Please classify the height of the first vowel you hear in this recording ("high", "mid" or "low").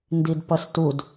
high